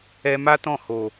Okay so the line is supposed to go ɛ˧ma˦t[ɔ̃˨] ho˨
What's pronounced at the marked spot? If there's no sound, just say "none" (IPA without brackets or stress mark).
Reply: ɔ̃˦˨